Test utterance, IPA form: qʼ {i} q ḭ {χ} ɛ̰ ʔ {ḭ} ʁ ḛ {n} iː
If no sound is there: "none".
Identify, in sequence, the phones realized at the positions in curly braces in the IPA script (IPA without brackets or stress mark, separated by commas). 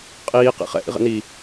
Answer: iː, χ, ḭ, n